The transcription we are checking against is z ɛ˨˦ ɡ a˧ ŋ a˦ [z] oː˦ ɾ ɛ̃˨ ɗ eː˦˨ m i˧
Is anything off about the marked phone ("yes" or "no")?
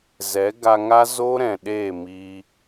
no